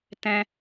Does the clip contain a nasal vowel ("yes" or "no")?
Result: yes